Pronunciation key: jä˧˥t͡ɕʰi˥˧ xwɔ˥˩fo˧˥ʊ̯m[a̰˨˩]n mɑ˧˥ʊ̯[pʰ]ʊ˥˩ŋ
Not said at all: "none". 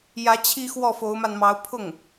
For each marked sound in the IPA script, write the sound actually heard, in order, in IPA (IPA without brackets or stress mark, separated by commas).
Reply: a˧, pʰ